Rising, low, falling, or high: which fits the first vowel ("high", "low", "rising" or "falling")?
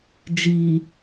low